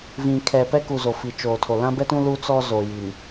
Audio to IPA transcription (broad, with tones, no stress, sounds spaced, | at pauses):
v ĩ˨ kʰ ɛ˨ p ɛ˦ k u˨ z o˨ f i˨ t͡ʃ oː˨ tʰ o˨ l ã˦ b ɛ˦ t ũ˦ l u˦ t͡s ɔ˦ z o˨ j i˨ n